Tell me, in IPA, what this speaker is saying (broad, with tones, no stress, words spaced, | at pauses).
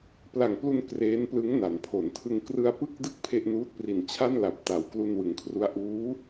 pla˨˩ŋplu˧n kreː˦˥nplɯ˦˥ŋ na˩˦npʰo˩˦ntʰɯ˧ŋ krɯ˧a̯pɯ˥˩k̚dɯ˥˩k̚ pʰe˥˩ʔnuː˦˥t̚ pri˨˩nt͡ɕʰa˥˩nla˨˩p̚ ta˩˦wklu˧nwɯ˩˦ŋkʰru˦˥a̯ ʔuː˦˥